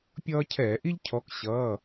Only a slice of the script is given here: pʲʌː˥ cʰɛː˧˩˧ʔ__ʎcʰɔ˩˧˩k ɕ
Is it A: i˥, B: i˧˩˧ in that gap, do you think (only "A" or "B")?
A